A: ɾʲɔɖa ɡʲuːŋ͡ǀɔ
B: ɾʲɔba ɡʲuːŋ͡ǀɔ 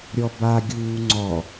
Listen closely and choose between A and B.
B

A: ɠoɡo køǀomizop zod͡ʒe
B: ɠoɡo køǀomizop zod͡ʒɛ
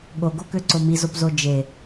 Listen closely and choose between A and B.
A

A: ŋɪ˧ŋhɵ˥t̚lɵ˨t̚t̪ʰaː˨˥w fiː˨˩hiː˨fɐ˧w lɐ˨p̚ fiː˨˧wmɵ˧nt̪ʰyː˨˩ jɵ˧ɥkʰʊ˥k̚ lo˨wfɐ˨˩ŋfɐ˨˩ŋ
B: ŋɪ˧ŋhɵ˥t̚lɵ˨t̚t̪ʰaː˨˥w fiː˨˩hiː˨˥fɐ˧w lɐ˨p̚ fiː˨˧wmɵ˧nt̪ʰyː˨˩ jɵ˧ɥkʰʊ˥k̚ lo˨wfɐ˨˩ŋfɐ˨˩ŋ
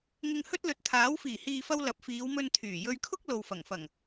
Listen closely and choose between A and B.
A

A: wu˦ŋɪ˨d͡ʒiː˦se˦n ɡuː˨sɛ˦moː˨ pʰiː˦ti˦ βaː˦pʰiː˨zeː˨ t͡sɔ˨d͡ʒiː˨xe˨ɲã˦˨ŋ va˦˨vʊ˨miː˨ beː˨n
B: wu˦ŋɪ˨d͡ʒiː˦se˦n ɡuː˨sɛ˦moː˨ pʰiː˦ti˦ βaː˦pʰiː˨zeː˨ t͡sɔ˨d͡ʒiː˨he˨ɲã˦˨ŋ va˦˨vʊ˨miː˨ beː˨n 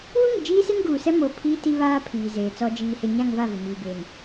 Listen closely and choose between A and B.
B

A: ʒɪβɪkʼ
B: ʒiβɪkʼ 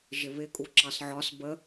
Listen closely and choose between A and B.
A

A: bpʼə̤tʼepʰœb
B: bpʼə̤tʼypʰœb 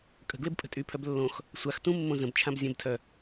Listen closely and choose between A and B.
B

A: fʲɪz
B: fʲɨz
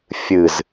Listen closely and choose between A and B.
B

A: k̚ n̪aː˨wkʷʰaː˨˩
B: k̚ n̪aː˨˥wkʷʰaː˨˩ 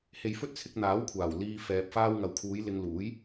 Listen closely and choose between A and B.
B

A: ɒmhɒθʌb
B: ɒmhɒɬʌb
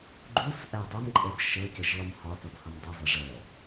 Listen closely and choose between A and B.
A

